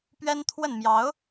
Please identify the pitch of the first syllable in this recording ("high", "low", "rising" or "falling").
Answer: high